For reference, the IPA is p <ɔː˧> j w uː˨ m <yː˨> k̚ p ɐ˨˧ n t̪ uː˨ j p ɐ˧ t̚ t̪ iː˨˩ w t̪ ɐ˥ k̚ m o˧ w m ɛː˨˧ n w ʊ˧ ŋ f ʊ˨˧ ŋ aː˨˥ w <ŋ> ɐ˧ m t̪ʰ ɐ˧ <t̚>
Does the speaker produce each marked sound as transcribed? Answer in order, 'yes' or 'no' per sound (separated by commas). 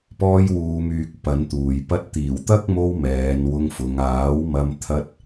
yes, yes, no, yes